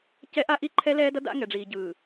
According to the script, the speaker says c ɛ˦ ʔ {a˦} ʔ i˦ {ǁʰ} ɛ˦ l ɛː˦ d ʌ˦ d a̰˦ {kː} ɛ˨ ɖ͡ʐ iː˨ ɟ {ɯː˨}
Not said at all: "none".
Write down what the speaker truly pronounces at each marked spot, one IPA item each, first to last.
a˦, ǃʰ, ŋ, ɯː˨

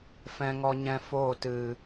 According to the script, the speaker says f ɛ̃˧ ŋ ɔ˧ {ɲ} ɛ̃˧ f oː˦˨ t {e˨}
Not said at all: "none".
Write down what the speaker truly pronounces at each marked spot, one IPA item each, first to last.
ɲ, ɨ˨

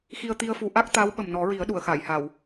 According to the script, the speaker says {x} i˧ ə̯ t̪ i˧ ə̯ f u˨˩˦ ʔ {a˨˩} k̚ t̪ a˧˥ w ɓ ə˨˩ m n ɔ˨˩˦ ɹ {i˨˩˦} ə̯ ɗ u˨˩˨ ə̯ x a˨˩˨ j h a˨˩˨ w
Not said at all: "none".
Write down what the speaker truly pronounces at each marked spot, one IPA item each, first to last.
x, a˦˥, i˨˩˦

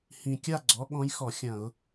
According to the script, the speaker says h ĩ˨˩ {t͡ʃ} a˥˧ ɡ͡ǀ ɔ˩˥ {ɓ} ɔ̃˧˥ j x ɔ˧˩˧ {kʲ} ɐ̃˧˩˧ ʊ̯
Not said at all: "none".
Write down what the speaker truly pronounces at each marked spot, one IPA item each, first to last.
kʲ, ɠ, xʲ

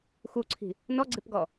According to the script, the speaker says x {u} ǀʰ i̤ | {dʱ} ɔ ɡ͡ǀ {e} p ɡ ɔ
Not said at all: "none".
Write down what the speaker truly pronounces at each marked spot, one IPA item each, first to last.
u, n, e

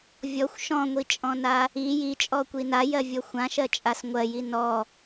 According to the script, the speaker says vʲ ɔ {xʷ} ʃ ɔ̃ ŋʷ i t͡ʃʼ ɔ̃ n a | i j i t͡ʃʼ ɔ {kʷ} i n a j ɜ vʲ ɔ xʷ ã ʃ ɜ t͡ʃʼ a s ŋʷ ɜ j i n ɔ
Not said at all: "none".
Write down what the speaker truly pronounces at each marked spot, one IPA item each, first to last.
xʷ, kʷ

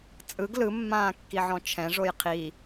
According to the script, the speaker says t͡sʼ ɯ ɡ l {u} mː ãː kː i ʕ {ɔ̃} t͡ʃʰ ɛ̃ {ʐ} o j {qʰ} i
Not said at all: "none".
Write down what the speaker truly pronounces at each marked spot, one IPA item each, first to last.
ɯ, ɔ̃, ʐ, qʰ

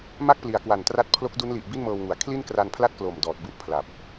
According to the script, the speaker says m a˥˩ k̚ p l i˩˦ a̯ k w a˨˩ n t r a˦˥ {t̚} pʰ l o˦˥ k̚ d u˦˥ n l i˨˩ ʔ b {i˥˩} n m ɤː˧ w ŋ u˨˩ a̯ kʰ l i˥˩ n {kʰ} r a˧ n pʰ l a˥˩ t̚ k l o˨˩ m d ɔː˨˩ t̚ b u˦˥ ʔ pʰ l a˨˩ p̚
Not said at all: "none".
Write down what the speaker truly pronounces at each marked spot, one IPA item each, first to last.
t̚, i˥˩, k

